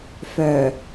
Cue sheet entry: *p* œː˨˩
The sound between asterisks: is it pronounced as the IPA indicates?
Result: no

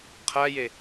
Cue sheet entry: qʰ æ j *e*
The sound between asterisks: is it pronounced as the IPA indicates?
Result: yes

